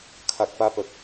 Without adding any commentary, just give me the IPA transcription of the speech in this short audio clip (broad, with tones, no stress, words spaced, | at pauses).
kʰa˨k̚pa˧pə˨k̚